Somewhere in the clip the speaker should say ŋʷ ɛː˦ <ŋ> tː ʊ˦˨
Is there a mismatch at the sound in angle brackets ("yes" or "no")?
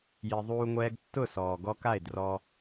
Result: yes